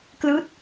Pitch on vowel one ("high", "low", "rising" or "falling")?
falling